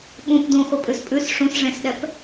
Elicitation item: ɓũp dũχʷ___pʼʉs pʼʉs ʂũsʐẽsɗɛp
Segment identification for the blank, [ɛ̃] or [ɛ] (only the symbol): ɛ